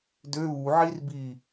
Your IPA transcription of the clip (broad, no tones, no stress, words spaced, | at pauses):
dø βuʕir bi